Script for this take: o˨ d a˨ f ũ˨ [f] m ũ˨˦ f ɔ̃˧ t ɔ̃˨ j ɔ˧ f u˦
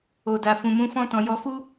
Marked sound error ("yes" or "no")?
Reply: yes